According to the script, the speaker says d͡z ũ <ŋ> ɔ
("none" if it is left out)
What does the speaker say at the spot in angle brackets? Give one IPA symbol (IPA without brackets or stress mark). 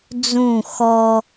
x